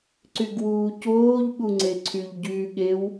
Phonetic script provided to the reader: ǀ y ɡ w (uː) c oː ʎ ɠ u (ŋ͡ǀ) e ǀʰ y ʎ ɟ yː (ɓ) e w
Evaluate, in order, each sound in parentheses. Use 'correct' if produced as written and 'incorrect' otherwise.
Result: correct, correct, incorrect

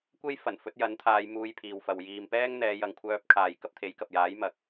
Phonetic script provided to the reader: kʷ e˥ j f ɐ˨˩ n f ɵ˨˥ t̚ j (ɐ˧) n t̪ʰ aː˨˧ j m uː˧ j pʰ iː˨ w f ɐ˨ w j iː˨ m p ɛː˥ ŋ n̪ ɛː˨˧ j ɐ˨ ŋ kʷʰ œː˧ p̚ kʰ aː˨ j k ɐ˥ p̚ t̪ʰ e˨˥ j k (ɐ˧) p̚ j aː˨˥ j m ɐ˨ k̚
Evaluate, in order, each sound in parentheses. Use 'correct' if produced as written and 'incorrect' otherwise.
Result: incorrect, incorrect

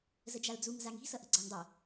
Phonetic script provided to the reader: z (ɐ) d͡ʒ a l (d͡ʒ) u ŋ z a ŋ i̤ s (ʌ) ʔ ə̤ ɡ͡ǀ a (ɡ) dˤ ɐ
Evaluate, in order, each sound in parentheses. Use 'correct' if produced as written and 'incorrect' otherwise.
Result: incorrect, incorrect, correct, incorrect

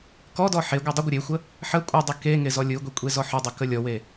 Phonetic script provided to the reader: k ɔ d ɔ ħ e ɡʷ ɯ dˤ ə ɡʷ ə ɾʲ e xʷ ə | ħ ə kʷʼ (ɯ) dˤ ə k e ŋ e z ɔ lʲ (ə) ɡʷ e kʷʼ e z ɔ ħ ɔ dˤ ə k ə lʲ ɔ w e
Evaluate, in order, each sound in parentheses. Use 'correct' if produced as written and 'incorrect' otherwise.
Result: correct, incorrect

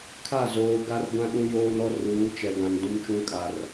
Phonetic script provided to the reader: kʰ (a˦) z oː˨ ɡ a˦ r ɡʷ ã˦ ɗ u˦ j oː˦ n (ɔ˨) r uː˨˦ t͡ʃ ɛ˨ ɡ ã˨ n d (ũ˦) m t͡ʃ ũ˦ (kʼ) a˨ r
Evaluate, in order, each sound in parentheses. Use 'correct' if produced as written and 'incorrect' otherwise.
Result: incorrect, incorrect, correct, correct

